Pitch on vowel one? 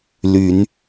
rising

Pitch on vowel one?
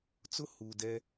high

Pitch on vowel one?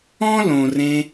high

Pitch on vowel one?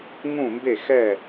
falling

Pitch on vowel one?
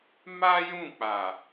high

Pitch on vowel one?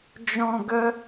low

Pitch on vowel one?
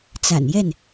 low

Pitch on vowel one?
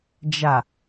low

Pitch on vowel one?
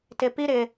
low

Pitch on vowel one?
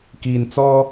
low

